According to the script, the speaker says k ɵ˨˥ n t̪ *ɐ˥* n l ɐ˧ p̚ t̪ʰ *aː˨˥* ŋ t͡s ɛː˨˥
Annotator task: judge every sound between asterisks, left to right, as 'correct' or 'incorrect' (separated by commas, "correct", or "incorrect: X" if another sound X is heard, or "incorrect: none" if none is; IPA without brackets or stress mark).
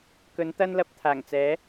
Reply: correct, incorrect: aː˨˩